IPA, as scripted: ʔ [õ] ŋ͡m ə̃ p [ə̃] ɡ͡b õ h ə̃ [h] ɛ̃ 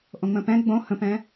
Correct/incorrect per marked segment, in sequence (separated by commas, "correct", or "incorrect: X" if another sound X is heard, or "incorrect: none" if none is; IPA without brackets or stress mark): correct, incorrect: ɛ̃, incorrect: p